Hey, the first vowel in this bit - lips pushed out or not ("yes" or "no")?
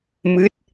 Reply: no